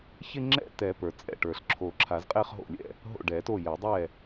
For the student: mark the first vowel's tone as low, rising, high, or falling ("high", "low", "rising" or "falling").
falling